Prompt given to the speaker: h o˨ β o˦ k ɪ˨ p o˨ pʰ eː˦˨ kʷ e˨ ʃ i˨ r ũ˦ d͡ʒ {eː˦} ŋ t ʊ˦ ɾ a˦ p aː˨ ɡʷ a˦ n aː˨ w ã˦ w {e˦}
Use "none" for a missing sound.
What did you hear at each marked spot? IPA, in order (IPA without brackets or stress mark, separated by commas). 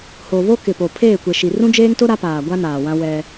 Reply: eː˦, ɛ˦